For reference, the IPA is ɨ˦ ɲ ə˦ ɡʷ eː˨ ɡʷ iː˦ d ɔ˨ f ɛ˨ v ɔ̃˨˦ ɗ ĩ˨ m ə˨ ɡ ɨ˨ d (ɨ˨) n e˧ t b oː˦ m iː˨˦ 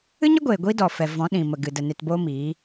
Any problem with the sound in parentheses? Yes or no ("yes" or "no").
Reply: yes